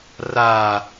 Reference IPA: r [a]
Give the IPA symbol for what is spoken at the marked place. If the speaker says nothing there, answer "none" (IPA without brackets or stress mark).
a